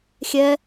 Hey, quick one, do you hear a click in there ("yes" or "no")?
no